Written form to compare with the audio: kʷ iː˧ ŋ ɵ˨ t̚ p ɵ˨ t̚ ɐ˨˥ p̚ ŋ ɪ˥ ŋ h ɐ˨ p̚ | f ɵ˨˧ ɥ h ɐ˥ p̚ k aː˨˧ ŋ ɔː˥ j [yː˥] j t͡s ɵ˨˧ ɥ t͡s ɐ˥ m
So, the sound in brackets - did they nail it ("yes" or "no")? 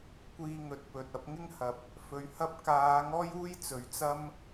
no